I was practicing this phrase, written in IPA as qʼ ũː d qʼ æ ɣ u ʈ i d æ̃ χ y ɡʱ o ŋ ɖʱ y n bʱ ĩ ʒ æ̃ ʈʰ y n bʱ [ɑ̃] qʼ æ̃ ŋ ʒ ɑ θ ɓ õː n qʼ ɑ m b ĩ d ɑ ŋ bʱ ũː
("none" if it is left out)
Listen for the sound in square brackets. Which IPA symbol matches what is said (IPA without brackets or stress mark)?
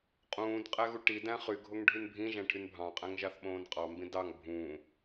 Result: ɑ̃